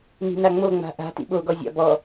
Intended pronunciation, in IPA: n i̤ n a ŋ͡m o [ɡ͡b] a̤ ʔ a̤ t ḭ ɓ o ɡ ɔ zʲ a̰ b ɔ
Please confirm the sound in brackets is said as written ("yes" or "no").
no